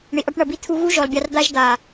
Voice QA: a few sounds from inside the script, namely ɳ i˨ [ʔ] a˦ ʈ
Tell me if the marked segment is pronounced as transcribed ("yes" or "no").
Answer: yes